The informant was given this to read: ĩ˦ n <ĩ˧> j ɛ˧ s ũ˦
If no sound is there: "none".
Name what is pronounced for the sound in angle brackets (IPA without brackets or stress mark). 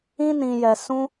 ĩ˧